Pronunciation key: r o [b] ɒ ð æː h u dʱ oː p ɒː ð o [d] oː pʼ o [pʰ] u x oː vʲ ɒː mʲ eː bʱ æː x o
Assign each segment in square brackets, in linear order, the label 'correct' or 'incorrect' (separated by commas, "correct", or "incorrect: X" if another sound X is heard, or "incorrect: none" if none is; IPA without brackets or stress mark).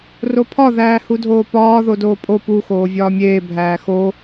incorrect: pʰ, correct, incorrect: p